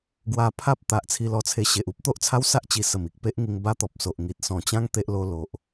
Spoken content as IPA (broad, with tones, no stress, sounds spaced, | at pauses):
ɡ w a˧ pʰ a˦ p̚ t̪ a˨ ʔ t͡sʰ i˧ l ɔ˧ t͡sʰ e˧ ɕ e˨ ʔ u˦ p̚ t̪ o˦ ʔ t͡sʰ a˦ w s a˦ ʔ t͡ɕ i˧ s ə˨˩ m i˨ k̚ p e˦ ʔ ŋ i˧ ŋ b a˦ t̪ ɔ˨ p̚ s o˨ ʔ ŋ i˨ t̚ s ɔ̃˨˩ t͡ɕ ã˦ ŋ t̪ e˦ ʔ l o˦ l o˨ ʔ